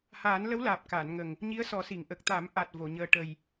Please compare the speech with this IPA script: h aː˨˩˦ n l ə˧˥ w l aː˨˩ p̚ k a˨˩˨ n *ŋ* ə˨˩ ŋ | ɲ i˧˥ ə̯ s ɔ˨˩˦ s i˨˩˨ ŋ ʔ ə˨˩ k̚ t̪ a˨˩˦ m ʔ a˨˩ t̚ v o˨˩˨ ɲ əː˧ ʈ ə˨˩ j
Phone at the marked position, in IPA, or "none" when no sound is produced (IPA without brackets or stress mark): ŋ